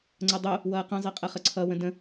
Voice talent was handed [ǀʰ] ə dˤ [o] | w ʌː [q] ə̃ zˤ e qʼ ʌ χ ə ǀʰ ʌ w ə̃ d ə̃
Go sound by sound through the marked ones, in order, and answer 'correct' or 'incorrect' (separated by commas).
incorrect, correct, correct